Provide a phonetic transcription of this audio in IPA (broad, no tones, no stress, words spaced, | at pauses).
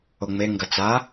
oŋ͡me ŋɡɐt͡sa